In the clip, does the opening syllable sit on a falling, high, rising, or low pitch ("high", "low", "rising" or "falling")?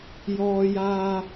high